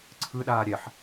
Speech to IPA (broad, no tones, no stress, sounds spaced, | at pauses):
ǀʰ ɯ ɗ aː ɾʲ ɛ ħ